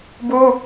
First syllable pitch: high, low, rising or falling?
high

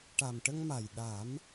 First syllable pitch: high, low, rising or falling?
low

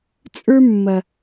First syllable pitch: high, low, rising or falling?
high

